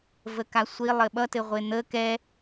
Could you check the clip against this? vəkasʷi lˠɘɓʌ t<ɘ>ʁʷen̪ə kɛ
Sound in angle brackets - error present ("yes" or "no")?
no